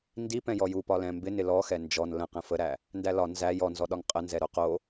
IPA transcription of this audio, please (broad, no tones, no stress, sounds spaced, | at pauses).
n d i p ɛ̃ j ɔ j u p ɒ l ɛ̃ m b ɪ n ɪ l ɔ x ɛ n d͡ʒ ɔ n l ə̃ q ɛ̃ f ə ɾ æ | n d æ l ɒ n z æ j ɔ n z ɔ ɗ ɒ ŋ qʼ ə n z ɛ ɾ o q o